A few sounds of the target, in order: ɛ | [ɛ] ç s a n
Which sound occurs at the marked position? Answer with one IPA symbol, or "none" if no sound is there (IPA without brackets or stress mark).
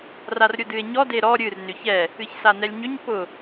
ɨ